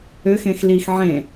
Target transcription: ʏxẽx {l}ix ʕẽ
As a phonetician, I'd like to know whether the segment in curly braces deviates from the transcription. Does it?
no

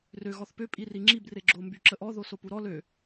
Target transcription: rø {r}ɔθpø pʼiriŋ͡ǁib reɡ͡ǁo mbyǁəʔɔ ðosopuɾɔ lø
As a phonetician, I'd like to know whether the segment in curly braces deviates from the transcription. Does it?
yes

